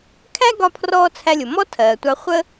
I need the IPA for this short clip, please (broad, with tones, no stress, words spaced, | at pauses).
kʰæ˥ɡɒ˧pʰrɔː˧ t͡sʰæ˧lʲʊ˩ mɔ˥tʰɜː˩tʷɑ˧ χʷə˥